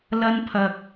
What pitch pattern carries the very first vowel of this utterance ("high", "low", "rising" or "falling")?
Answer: high